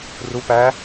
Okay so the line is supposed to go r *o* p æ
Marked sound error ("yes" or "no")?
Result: yes